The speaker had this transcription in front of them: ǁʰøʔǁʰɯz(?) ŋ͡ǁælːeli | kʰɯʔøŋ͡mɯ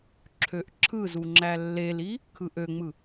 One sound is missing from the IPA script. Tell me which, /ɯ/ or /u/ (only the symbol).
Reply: u